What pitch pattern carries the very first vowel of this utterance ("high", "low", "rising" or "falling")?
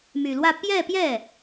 low